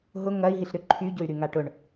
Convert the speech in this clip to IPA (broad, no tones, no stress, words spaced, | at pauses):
ɦʊ ŋɐi̯ ɦiɬɾʏ ǃʰyɟʊy̯ ɾyŋaʈʊɳ